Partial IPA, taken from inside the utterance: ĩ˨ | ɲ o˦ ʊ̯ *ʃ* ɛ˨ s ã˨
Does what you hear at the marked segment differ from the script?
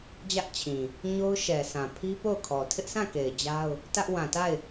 no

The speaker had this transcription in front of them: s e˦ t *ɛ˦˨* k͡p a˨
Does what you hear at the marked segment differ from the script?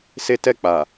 no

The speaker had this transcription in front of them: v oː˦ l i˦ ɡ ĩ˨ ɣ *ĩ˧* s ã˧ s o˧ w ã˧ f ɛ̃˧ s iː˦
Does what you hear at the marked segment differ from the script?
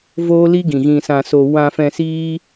no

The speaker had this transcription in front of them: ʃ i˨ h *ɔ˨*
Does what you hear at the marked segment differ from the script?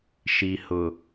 yes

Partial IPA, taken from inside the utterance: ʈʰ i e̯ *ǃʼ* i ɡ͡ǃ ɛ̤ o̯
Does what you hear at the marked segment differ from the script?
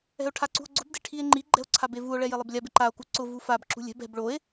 yes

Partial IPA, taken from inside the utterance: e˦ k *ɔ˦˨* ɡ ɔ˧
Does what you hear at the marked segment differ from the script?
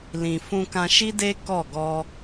no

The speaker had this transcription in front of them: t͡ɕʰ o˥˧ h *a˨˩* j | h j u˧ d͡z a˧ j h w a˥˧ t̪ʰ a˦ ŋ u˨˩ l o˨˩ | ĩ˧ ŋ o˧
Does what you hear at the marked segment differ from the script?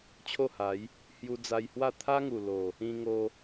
yes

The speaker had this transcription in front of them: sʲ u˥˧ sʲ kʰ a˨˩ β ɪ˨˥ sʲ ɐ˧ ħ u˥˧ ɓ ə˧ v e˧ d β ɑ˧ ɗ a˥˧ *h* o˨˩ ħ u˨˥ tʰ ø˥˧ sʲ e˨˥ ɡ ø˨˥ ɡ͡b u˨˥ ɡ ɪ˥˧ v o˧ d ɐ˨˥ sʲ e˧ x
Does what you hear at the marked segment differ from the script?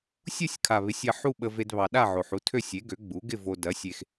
yes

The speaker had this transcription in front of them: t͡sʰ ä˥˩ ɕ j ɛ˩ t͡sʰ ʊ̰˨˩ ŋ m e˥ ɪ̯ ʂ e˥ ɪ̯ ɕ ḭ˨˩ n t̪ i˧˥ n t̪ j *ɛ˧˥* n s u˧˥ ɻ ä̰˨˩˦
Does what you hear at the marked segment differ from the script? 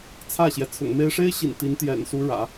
yes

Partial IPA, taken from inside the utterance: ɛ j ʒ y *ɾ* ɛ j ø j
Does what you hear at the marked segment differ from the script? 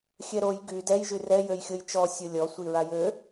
yes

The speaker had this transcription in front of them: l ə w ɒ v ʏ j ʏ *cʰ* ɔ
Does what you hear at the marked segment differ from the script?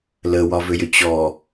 yes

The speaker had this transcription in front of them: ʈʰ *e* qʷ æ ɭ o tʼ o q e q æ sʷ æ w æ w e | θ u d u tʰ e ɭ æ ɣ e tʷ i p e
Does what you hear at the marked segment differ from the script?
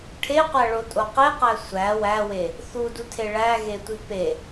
no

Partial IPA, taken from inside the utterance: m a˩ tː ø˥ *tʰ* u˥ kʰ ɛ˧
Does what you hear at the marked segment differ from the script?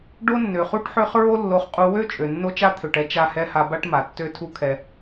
no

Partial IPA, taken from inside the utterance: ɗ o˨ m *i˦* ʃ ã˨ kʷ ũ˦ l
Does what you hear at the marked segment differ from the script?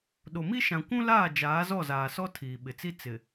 no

